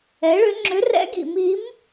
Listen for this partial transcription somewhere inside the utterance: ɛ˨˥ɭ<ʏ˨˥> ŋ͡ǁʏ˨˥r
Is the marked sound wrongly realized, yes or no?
no